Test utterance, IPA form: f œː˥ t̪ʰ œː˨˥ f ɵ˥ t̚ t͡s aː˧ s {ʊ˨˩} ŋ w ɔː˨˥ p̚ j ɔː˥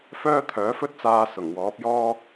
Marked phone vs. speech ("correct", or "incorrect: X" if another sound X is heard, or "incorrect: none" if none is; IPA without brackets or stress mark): correct